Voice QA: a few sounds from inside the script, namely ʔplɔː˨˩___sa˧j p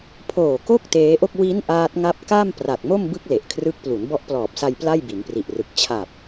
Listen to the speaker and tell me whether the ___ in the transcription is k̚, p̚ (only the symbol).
p̚